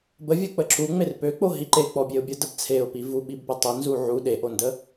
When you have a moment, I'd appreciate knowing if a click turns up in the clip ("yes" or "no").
yes